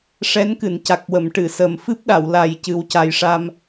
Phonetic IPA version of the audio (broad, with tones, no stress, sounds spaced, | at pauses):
ʂ ɛ˧˥ n k ɨ˨˩˨ n c a˨˩ k̚ w ə˨˩˨ m ʈ ɨ˨˩˨ s ə˨˩ m f ɨ˦˥ p̚ ɗ a˨˩˨ w l a˨˩ j c ɨ˨˩ w c a˨˩ j ʂ a˧ m